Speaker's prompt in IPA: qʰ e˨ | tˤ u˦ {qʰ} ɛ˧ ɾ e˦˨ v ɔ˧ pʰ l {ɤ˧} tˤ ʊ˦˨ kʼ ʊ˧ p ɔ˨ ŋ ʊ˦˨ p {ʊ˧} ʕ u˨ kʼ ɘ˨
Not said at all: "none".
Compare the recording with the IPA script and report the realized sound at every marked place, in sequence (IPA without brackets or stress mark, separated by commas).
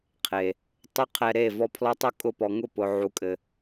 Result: qʰ, ɔ˧, ʊ˨